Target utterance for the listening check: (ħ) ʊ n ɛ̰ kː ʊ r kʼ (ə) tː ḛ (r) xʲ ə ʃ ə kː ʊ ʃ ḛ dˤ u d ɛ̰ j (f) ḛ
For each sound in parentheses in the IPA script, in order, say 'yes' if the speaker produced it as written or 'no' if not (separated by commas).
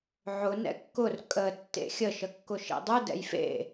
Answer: no, yes, no, yes